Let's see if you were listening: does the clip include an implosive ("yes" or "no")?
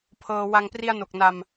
no